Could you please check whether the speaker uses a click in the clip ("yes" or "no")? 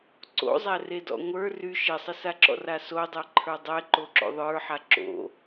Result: yes